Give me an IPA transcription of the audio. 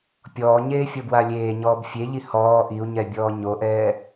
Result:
pʲ ɔː ɲ eː fʲ ɤ b w a lʲ eː ɲ ɔː b fʲ e ʎ i h ɔː ʔ i u̯ ɲ ɛ bʲ ɔː ɲ o ʔ ɛː

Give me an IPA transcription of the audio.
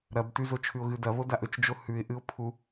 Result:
ɾ ɐ b t ʉ z o t͡ʃʰ ʉ ʊ̯ ɣ ɨ d ɐ β o d a ʔ ɵ t͡ʃ d͡ʒ o h ʉ ɪ̯ ʔ ɨ ʊ̯ pʰ u

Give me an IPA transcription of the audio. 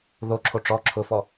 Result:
ð o ǁʰ o ʈ͡ʂ ɔ ǁʰ ʊ f ɔ

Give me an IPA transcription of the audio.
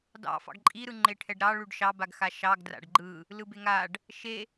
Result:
d ɑ̰ f ɑ̰ ɡ ǃʼ i ɾ ɯ ŋ͡ǃ e ʈʰ ɛ ɖ ɾ ɑ ɭ ʉ ɖ ʃ ɑ b a ɡ x a ʃ ɑ ɡ d r a̰ ɖ ɡ͡ǃ ɯ | l ɯ b e ŋ a ɖ | ʃ e

